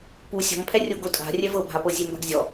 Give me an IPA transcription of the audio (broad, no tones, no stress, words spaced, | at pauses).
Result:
pu sʲɔ̤mpʰɛrʲo ɡotʼa̤ rʲɛvɤbʱapɤ zʲemba̤ɡzʲɔ